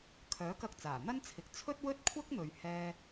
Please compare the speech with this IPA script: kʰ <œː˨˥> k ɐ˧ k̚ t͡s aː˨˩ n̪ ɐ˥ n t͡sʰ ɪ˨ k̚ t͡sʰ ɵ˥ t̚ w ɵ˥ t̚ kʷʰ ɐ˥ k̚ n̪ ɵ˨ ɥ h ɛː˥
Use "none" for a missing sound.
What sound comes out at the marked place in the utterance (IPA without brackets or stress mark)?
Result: œː˨˥